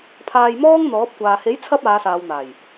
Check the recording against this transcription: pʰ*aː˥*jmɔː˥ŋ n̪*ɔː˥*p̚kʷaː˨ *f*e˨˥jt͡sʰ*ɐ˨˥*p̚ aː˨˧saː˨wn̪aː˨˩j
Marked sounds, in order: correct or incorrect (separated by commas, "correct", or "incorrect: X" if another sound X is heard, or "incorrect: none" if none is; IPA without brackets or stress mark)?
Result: incorrect: aː˧, incorrect: ɔː˨˥, incorrect: h, incorrect: ɐ˧